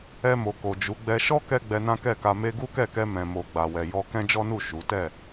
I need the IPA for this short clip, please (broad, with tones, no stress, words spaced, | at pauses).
ɛ˧mo˨ko˨ d͡ʒu˨˦ɡ͡bɛ˧ ʃɔ˦kɛ˧ ɡ͡bɛ˧nã˦kɛ˦˨ka˧ me˧ɡu˦kɛ˦˨kɛ˧ mɛ̃˨mo˨ ɡ͡ba˨wɛ˨jɔ˧ kɛ̃˦d͡ʒɔ˦nu˦˨ ʃu˨˦ tɛ˦˨